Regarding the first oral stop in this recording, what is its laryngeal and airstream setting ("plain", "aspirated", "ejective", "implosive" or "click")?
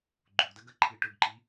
click